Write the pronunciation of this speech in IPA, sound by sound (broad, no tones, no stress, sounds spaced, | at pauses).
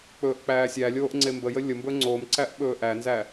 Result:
k͡p ɵː ʔ k͡p æː sʲ æ lʲ oː ʔ ŋ͡ǀ e m b ə j ə lʲ ə m b ɵ ŋ͡ǀ o m ǀ æ ʔ ɓ ɵː ʔ æ n z æ